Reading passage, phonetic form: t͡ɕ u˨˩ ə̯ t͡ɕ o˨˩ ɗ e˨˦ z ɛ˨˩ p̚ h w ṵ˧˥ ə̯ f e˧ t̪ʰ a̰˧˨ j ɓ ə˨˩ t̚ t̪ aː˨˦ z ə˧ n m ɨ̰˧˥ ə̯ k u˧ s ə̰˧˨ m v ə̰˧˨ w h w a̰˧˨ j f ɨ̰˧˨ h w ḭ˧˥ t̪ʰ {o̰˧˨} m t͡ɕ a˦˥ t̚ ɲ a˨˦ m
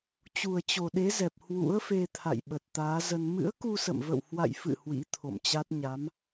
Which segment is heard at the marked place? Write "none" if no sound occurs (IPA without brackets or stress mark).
o̰˧˨